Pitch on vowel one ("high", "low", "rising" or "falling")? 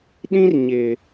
high